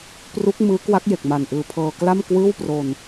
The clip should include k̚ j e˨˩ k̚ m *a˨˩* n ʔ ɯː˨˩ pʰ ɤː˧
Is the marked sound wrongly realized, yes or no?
no